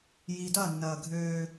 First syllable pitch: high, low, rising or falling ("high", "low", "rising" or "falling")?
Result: low